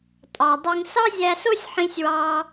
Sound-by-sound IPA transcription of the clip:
tʼ ɑ˩ dˤ i˧ ŋ s ɑ˥ zʲ æ˧ s o˥ sʲ ħ ĩ˧ sʲ w ɑ˧

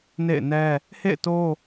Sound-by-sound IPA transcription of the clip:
n ḛ˦˨ ɪ̯ n ɛ˦ | h ḛ˦˨ ɪ̯ t o˦

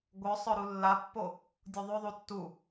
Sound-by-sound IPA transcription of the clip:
ɡʷ œ sˤ œ ɾ u lː a pː o | dʲ u ðˤ ʉ ðˤ u tː u

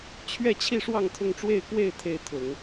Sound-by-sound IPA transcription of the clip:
t͡ɕʰ ɥ ɛ˥˧ t͡ɕʰ i˥˧ ʂ w ɑ˥˧ ŋ t̪ʰ ʊ˥˧ ŋ ʈ͡ʂ w e˥˧ ɪ̯ k w e˥˧ ɪ̯ t̪ʰ e˥˩ ɪ̯ t̪ʰ ʊ˨˩˦ ŋ

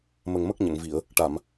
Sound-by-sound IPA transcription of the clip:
m ə˨˩ ŋ m ə˦˥ k̚ ɲ ə˨˩˨ ŋ v i˨˩˨ ə̯ | ʈ a˨˩˨ m

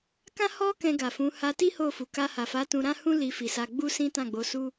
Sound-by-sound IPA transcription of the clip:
k ã˦ h ɔ˦ k ɛ̃˧ ɡ a˨ f ũ˨˦ h a˧ t i˦ h o˦˨ f u˨ k a˧ h a˨ f a˨˦ t ũ˧ ɾ ã˦ h ũ˦ l i˧ f i˨ s a˧ ɡ͡b u˦ s ĩ˦ t ã˦˨ ɡ͡b o˧ s u˦

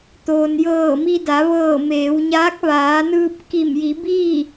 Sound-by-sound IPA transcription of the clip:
t̪ oː˩ n j ɤː˧˩ m i˧ d a˩˧ ʋ ɤː˧˩ m eː˩˧ w ɲ aː˧˥ k̚ ʋ aː˩˧ n ɯː˧ p̚ k i˧˩ m j i˩˧ b iː˥˨

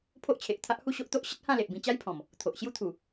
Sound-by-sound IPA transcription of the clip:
pʰ o˦ ʔ t͡ɕʰ e˨ ʔ t̪ʰ a˦ ʔ h u˥˧ ɕ o˦ ʔ t̪ o˦ ʔ ɕ ə˦ t̚ h ã˥˧ l e˨ ʔ b ĩ˧ t͡ɕ a˦ j pʰ ɔ̃˨˩ m | t̪ʰ o˨ ʔ ɕ j u˦ t̪ʰ u˨˩

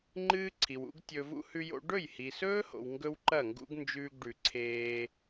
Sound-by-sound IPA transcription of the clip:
ŋ͡ǃ ɨː˦ ǀʰ i˨ w ṵ˦ ɡ tʲ ɵ˧ v ṵ˦ h ʉ˦ j o̰˦ ɖ ɵ˦˨ j h i˨ s ɵː˦ h o̰˨ w ŋ ɡ ɵ˦ w ǃ ɐ˦˨ ŋ ɡ ṵ˦ ɡ n d͡ʒ ʉː˧ ɡ ɖ ʉ˨ ǀʰ eː˧

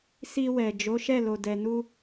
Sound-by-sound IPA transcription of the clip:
s i˧ w ɛ˨ d͡ʒ o˨˦ ʃ ɛ˦˨ l o˨ d ɛ˨ n u˧

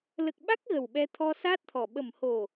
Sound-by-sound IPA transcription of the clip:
l ə˨˩ k̚ ɓ a˦˥ k̚ ɣ ə˨˩ w ɓ ɛ˧ t̪ʰ ɔ˧ s aː˦˥ t̚ t̪ʰ ɔ˨˩ ɓ ə˨˩ m h o˨˩

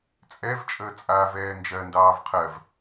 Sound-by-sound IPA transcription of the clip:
t͡sʼ ɛ v t͡ʃʼ əː t͡sʼ aː v ɛː n d͡ʒ ɜ n d ɑː v qʰ ɜ v

